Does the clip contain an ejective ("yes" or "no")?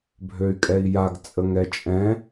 yes